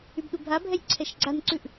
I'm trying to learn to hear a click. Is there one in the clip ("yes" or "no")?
yes